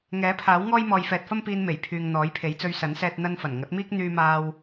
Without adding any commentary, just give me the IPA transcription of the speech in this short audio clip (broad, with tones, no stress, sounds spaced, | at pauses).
ŋ ɛː˨˥ pʰ aː˨˥ w ŋ ɔː˥ j m ɔː˨ j f ɛː˨ t̚ f ɐ˥ m p iː˧ n m e˨˩ j pʰ yː˨ ŋ n̪ ɔː˨˥ j pʰ e˨˥ j t͡s ɵ˧ ɥ s ɐ˨˥ n s ɛː˧ t̚ n̪ ɐ˧ n f ɐ˨˩ n ŋ ɐ˨˥ t̚ m iː˥ k̚ n̪ yː˥ m aː˥ w